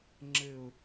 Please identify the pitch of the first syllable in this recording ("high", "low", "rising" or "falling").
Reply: falling